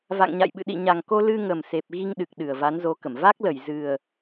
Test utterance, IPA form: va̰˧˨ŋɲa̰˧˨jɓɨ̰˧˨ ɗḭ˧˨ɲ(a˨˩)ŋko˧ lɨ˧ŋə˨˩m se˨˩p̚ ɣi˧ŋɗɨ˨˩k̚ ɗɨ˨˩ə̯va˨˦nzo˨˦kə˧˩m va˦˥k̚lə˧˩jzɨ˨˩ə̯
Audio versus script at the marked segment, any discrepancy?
no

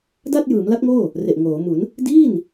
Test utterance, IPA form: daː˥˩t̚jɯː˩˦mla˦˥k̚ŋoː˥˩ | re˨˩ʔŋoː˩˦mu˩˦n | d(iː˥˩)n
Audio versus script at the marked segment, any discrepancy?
no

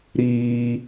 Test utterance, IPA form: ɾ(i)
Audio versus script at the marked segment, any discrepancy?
yes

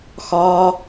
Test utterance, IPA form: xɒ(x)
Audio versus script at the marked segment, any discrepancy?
yes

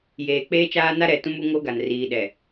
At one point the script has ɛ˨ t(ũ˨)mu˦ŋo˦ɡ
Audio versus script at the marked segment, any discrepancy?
yes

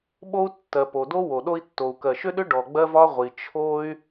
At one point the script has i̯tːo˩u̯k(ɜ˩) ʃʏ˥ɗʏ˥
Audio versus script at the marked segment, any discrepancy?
no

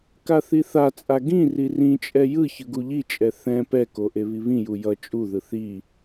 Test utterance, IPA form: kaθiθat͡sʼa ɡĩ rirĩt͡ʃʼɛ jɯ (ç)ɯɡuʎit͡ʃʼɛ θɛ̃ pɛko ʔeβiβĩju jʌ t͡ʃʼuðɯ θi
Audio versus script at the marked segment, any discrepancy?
no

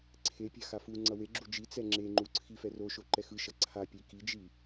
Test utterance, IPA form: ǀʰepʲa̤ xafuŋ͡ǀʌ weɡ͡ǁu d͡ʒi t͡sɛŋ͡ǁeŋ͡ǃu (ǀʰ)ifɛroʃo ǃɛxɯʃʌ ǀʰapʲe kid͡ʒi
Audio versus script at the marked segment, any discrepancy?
no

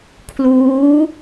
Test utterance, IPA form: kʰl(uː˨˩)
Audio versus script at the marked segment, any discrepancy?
yes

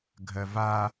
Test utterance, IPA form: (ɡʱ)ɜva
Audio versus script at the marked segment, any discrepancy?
no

